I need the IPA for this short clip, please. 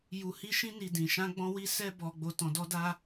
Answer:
ju˨hi˧ʃĩ˧ni˨ dĩ˨ʃã˧ɡ͡bɔ̃˧ wi˦sɛ˦bɔ˧ɡ͡bo˧ tɔ̃˧dɔ˦da˦

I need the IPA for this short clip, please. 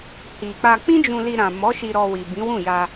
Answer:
hi˨k͡pa˧ k͡pĩ˦d͡ʒũ˧li˧ ɾã˨mɔ˨˦ ʃi˧ɾɔ˧wi˨ bĩ˨˦wũ˦˨ja˧

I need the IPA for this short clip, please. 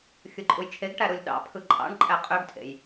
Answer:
xʲɯǃʼujt͡ʃʰeɡʈæ ɾulʲɗɑ̰pʰɯ ǃʼɑ̰ɳǃʼæ qʼøɡtʰḛj

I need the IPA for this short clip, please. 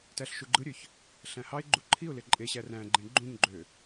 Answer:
tæɬʃuɡ͡ǃɯɾʲøç | ɬæ̃hɑɪ̯ɡ͡ǃu ǃʰiʊ̯ leǃʼeɕæ ræ̃ɡ͡ǃẽ ɡ͡ǃũɲɡ͡ǃø

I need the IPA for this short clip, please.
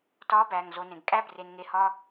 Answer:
tɒː˧˥ bæː˩ŋ zo˩˧nẽ˩ɡ kʼæ˥bre˩˧nŋe˩˧ hɒ˧

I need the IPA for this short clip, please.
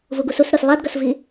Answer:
vuɡususɾɯs lˠadɡʌsvi

